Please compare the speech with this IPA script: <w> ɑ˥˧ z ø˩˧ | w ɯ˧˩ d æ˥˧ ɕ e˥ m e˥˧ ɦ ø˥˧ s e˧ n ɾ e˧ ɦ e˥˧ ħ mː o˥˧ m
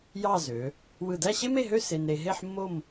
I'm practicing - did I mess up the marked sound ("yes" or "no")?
yes